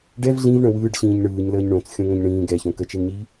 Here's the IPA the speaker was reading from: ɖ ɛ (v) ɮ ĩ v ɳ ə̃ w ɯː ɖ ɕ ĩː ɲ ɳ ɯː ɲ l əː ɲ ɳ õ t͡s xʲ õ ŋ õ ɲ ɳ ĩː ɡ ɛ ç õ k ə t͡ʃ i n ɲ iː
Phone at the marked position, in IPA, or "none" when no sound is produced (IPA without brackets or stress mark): v